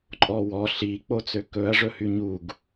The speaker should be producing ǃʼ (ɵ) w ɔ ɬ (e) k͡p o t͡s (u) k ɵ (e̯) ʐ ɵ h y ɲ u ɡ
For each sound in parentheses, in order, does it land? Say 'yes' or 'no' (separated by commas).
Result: no, no, no, no